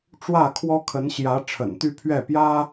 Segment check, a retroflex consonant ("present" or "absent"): present